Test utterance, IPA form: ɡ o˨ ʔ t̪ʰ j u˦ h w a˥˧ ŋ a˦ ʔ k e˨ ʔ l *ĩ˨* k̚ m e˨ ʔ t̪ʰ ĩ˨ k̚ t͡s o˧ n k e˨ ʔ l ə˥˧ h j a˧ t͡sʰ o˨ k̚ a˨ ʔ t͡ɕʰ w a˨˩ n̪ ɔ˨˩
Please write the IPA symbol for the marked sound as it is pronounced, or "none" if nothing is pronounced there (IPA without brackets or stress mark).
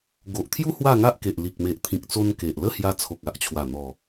i˨